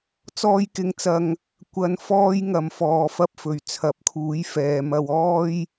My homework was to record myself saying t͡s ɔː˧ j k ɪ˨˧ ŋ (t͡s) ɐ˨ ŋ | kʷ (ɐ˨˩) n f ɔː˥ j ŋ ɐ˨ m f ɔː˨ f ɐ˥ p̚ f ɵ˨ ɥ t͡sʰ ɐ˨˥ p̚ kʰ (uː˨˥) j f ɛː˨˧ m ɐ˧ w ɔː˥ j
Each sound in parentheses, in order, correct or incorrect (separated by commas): correct, incorrect, correct